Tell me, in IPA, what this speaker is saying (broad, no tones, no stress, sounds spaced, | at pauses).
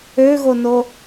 ø ɣ o n o